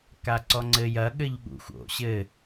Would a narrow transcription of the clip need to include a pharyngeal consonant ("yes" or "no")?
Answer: no